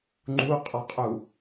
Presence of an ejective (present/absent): present